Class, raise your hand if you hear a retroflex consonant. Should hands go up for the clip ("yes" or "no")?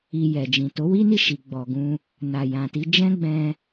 no